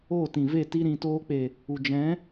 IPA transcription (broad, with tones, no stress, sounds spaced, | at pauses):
o˦˨ t ĩ˨ v e˦˨ t i˦ ɾ ĩ˧ t oː˦ k͡p e˨ | u˨ d͡ʒ ɛ̃˨˦